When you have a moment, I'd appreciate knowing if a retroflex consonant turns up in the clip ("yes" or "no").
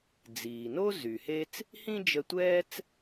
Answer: no